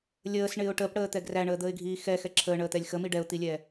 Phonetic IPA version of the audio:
lʲəːsɳɪːʊ̯ ʈəːpɽəːt̪ɛ ɡræɳəːd̪əːɪ̯ɡʱiː xɛxɛ ǁʰəːɳəːt̪ɛlʲ xəmi ɖɛʊ̯t̪ilʲɛː

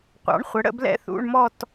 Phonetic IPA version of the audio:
qʷɑ̰˩˥ɳχʷə˩˥ ɽə̰˥˧blɛ̰˥˧θṵ˧˥˧ɳmɔ˥˧t

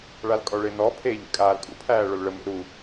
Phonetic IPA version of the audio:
ɭalkʼɔɭenɔ pʰeʎḛ kʼaːlkʼṵpʰæːɭol ɭəmḛ ɾu

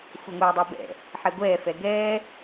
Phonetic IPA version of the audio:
xʷɛŋʷɛːdˤɜbɛ̰ | ħɛɡʷɛː fɛɡɛː

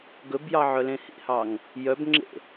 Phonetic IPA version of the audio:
ɡɵbjɑ ʕœlẽhḭhɑŋ | jœbŋ͡ǁḛ

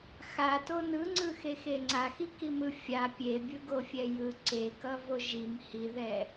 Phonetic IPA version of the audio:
xato nɯŋ͡ǀɯxexe ŋ͡ǀaxikimɯ fʲa pʲebʲɯɡofʲɛ jɯ ǀekʌvo ʒim hiðɛ

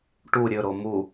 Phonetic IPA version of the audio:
ʈu ɾʲɵɾo mu

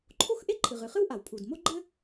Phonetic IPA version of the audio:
ǃʰo˥x ʔe˥ǃʰɨ˩ ʁɨ˩χɨ˥wʔa˩wpʰu˩d mo˥ɡ͡ǃɘ˥

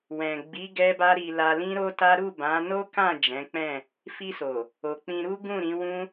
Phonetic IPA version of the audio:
wɛ̃˨ɡ͡bi˨˦ ɡɛ˦ba˦ɾi˧la˧ lĩ˦ɾo˦ta˦ ɾu˦˨bã˨˦ no˦kã˦˨ d͡ʒɛ̃˨˦k͡pɛ̃˦˨ | fi˧so˨ | o˨k͡pĩ˧ ɾu˦ ɡũ˦˨ɾĩ˨˦wũ˦

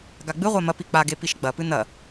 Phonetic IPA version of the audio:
ɡaɡ͡bɨʁʷa mɐpi k͡paɡe piʃɡ͡bɐpɨ nɐ

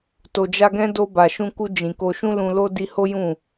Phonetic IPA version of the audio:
to˨d͡ʒa˧ɡɛ̃˦ do˧ba˨ʃũ˧ku˧ d͡ʒĩ˨ko˧ ʃũ˦lũ˧lo˦ di˧ho˦ jũ˦˨

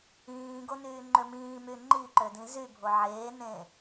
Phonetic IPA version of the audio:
ĩːɡo nyːŋ͡ǃømĩːmy ŋ͡ǃiǃø dĩzybʱo ʕeːnẽ

